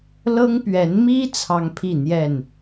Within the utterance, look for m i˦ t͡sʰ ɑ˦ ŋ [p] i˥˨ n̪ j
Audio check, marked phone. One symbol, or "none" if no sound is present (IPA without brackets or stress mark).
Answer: pʰ